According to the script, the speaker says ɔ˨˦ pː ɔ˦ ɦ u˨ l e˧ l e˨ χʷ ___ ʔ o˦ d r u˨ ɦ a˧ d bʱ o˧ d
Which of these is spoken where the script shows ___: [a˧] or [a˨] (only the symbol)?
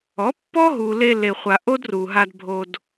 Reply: a˨